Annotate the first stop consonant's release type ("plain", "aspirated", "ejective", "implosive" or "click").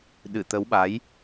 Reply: implosive